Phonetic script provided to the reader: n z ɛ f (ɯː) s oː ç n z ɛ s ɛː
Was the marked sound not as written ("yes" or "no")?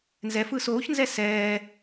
no